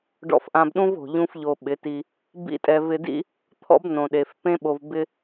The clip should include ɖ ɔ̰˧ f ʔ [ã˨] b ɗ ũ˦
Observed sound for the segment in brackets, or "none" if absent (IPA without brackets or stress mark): ã˧